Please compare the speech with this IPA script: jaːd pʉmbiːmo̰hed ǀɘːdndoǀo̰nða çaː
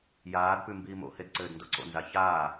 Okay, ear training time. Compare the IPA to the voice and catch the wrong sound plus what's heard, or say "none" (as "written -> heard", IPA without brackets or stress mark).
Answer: ð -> z